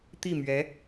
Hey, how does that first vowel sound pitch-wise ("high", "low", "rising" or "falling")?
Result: falling